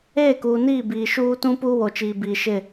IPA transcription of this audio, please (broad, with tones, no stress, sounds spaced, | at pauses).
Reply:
eː˦˨ k uː˨ n iː˦˨ b iː˨ ʃ uː˦ t ũ˦ p uː˦ w o˨ t͡ʃ iː˨ b iː˨ ʃ ɪ˦˨